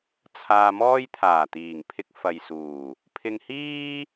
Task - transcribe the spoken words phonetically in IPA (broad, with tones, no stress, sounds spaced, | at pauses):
t͡sʰ aː˧ m ɔː˥ j t̪ʰ aː˨˩ t̪ iː˨˩ ŋ pʰ ɪ˧ k̚ f ɐ˨ j s uː˨˩ | pʰ ɪ˧ ŋ h iː˥